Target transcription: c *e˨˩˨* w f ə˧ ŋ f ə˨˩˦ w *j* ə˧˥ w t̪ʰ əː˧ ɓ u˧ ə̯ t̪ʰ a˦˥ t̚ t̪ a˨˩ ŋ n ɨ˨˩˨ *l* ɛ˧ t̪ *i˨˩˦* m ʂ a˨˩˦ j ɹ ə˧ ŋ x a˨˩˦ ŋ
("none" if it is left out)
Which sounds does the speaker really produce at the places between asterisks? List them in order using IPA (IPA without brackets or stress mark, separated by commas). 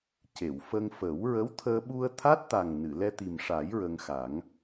e˨˩˨, ɹ, l, i˨˩